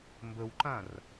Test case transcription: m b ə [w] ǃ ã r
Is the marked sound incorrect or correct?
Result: correct